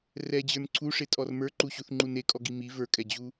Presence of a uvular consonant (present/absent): absent